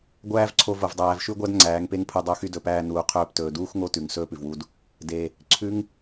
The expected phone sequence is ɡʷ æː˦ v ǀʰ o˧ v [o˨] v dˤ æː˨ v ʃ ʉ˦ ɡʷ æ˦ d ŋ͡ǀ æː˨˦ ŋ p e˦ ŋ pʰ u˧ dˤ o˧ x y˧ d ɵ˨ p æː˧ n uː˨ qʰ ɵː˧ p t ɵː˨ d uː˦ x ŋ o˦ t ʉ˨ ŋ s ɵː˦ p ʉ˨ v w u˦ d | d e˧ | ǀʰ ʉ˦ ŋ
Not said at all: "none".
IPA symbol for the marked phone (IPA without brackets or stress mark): o˨